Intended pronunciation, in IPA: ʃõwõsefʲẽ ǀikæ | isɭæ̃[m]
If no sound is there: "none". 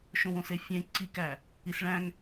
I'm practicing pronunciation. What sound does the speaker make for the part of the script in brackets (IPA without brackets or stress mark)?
ŋ